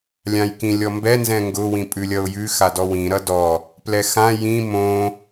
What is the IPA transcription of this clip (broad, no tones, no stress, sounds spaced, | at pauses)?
lʲ ã j k ĩ lʲ ɔ m b ɛ n z ɛ̃ ŋ ɡ ʊ w ĩ pʼ ʉ lʲ ʌ ʊ̯ j ʉ x a d ɔ w ĩ ɾ ʌ d ɔ | p l ɛ x ã j ĩ m õ